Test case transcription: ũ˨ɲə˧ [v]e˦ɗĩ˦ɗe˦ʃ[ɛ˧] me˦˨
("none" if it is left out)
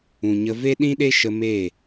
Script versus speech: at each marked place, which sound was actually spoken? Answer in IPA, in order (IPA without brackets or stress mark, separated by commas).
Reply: v, ə˧